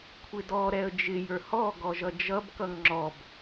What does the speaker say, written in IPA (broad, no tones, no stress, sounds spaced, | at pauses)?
kʷʰ ɪ d ɔ ɾ ɛ ə̯ d͡ʒ ɪ j ə˞ h ɔ ɡ ɔ ʒ ʌ d͡ʒ ʌ b k ʌ ŋ ŋ͡ǁ ɔ b